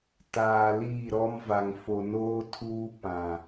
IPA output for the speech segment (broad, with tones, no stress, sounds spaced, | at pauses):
t aː˨ l iː˦˨ ɾ ɔ˦ m v a˨ ŋ f o˨ n oː˦ tʰ uː˦ p ã˨